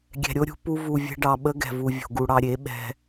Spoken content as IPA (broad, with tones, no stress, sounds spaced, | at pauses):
ɡʲ ɛ̤˧ ɾʲ o˦ ɾʲ ṳ˦ p u˦ v u˧ vʲ ɛ̤˦ ɖ ɑ˧ ɓ ə˦ ɡ ɛ̤˨ v u˨ vʲ o̤˨ ɡ u˨ ɽ ɑ˧ ɾʲ e˨˦ ɓ ɛ̤˧